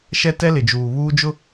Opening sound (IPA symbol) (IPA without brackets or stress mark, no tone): ʃ